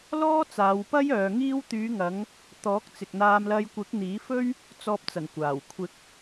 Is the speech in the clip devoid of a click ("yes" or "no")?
yes